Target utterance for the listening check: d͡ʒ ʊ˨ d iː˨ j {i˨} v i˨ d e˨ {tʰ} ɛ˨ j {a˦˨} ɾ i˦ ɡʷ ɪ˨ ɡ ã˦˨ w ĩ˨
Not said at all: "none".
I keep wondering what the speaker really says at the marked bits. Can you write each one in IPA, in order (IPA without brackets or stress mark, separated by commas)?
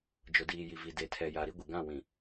i˨, tʰ, a˨